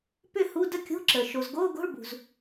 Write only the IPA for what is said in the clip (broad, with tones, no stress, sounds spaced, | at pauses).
p ʏ˥˧ h u˧˥˧ d ə˥˧ kʲ o̤˧˥˧ ǁ ə˩ ʃ o˩ z ɡ oː˧˥˧ ɡ o̤˧˥˧ ɭ b ṳ˩ z